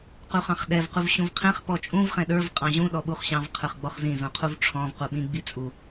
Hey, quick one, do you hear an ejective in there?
yes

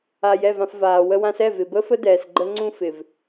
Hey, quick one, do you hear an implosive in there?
no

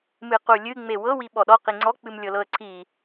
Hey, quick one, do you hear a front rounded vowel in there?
no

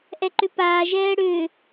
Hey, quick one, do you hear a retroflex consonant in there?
yes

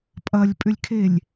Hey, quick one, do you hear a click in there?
no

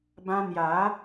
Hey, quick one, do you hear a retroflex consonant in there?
no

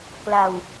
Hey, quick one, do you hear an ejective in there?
no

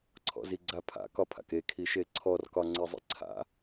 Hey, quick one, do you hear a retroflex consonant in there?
no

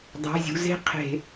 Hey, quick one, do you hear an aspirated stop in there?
yes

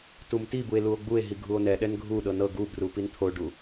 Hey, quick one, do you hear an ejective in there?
no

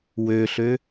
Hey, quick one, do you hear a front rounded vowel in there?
yes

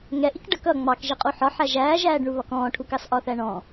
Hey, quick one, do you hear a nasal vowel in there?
yes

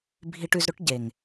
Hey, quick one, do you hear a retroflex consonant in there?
yes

